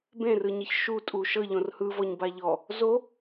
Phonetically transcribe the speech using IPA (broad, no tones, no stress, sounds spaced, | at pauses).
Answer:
b ẽ r ɯ ɲ i ç ʃ u tʼ u ʃ ɤ ʎ õ r h ɯ v ɔ ɲ b a ʎ ɔ | z o